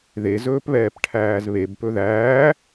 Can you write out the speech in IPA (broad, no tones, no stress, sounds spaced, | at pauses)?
ð e z ɵː p β ɛː p ʈʰ æː z β e b p ɵ ð æː